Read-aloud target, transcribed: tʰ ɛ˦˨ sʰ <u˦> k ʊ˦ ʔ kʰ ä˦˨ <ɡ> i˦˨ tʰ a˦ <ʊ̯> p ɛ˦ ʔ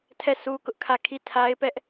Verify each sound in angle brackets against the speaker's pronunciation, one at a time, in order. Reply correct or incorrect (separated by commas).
correct, incorrect, incorrect